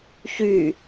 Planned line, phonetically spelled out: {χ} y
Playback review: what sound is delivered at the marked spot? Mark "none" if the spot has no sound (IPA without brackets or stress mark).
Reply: ç